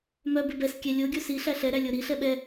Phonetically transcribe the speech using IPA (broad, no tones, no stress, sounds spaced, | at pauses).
m œ b ɪ b ɛ s kʲ ɛ lʲ o ɡʲ o s i ɬ æ ɬ ɛ ɾ æ lʲ o ɾ i ɬ ɛ ɓ ɛ